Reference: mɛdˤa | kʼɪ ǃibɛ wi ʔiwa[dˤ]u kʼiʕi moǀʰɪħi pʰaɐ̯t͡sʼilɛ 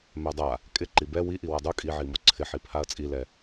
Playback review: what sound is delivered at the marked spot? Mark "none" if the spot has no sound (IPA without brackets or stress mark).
dˤ